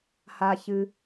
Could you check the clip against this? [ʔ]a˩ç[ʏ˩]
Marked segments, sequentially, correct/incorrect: incorrect: h, incorrect: ɨ˩

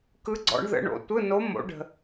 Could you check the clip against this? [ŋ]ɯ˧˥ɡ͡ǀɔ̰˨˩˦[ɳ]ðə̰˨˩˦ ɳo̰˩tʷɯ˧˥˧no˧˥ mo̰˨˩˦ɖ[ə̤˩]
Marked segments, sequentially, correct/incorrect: incorrect: k, correct, correct

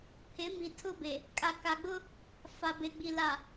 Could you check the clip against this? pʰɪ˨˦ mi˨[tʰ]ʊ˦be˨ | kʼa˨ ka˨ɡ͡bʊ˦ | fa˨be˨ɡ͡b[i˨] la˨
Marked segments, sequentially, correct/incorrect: correct, correct

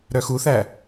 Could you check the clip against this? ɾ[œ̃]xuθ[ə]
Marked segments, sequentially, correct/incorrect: incorrect: œ, incorrect: æ

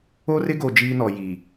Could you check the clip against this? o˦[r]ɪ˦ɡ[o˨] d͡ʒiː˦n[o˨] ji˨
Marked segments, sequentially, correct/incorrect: correct, correct, incorrect: ɔ˨

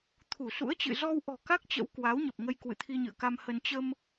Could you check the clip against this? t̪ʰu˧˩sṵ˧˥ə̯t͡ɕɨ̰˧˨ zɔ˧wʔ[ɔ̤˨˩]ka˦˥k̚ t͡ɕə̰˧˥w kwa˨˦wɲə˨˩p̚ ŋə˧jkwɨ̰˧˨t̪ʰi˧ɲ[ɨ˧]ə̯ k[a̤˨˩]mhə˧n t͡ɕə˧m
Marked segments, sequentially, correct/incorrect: correct, incorrect: ɨ̰˧˨, incorrect: a˧

